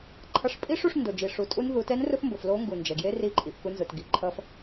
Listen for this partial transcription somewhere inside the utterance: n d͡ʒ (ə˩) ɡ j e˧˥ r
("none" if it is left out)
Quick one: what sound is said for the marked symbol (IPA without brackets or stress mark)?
ɛ˩